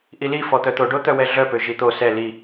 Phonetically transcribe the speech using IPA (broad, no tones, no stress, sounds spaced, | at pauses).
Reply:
ʔ i l i f ɔ t̪ œ t̪ o ɖ o t̪ œ w ɛ ɮ œ p ø ʒ i t̪ o s ɛ l i